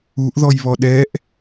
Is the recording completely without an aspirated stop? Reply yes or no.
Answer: yes